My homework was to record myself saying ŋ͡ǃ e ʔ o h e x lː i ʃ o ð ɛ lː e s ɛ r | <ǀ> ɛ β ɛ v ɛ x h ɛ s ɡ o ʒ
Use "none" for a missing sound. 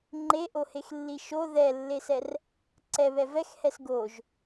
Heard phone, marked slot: ǀ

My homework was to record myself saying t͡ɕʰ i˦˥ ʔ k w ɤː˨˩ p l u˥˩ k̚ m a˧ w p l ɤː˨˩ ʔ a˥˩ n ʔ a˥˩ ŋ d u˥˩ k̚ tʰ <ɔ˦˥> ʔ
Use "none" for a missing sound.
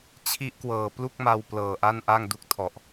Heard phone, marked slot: ɔ˨˩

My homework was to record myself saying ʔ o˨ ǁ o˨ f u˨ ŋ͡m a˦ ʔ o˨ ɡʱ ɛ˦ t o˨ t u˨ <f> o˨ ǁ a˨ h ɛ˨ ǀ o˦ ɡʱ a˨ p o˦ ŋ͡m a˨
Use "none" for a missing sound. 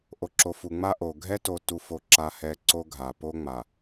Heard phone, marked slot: f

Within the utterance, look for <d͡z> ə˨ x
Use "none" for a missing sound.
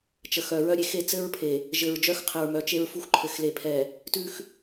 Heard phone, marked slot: t͡ʃ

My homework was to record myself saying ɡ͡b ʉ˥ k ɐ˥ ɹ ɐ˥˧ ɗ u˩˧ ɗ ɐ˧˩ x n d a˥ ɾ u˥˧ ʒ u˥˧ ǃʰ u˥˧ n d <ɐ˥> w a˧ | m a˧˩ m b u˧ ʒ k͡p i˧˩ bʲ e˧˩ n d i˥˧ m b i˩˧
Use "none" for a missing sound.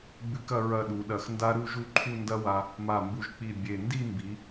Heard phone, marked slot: ɐ˥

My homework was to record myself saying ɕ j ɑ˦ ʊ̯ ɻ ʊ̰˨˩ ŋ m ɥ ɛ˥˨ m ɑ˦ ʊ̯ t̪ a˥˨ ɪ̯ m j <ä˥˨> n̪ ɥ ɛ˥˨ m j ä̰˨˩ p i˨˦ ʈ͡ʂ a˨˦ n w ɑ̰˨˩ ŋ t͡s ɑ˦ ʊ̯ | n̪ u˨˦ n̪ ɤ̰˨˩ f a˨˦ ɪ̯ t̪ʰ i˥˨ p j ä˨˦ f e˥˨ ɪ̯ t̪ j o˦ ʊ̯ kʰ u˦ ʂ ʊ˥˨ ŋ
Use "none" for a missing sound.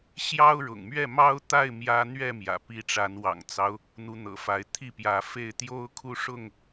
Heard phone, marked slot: ä˦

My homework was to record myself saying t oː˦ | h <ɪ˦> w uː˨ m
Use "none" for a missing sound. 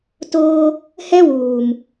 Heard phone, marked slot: ɛ˦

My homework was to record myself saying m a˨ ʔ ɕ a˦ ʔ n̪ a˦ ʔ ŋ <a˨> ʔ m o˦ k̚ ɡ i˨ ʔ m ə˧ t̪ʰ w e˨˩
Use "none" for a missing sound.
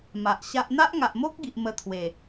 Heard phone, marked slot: a˨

